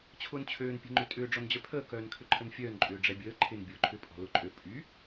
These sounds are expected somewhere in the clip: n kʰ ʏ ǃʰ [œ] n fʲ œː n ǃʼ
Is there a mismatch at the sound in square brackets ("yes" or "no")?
yes